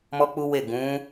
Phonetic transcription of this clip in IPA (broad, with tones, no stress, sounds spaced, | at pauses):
m ɔ˦ k͡p u˦ w e˦˨ ɡ ũ˨˦